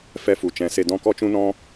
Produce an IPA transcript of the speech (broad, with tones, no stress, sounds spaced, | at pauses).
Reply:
f ɛ˧ f u˨ t͡ʃ ɛ̃˨˦ s e˧ d ɔ̃˦ k ɔ˦ t͡ʃ ũ˦ n ɔ̃˦